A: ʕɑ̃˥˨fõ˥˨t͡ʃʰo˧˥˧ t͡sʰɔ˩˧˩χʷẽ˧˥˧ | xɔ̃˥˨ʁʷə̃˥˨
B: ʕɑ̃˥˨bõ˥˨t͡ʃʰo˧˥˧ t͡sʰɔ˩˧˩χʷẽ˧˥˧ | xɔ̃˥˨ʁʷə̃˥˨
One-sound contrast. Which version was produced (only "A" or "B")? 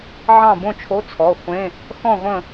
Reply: B